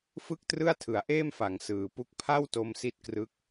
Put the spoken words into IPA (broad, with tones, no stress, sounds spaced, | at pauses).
f ɯ˥˩ k̚ t r ɯ˥˩ a̯ tʰ ɯ˩˦ a̯ ʔ eː˥˩ m f a˩˦ ŋ s ɯː˩˦ p u˦˥ k̚ pʰ a˥˩ w t o˧ m s i˦˥ t̚ k r ɯ˦˥ k̚